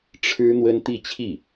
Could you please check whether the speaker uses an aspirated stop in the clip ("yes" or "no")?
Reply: yes